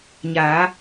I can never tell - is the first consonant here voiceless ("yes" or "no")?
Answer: no